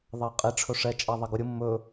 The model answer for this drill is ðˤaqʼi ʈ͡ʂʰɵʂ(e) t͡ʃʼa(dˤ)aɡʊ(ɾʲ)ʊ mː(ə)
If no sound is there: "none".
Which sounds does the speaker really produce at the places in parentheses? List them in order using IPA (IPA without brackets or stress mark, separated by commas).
ɛ, ðˤ, ɾʲ, ɵ